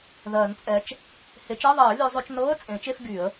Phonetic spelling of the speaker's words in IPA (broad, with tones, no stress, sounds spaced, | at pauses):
ð ɜː˨˩˦ n t͡sʼ ɛ˨˦ t͡ʃ | h e˨˩˦ t͡ʃ ɜ˧˥˧ ðˤ ɜː˨˩˦ lʲ ø˨˦ zˤ ø˨˦ t͡ʃ n ɤː˧˥˧ ə̯ t͡sʼ ẽː˨˩˦ t͡ʃ e˧˥˧ f ɡ y˨˩˦ ə̯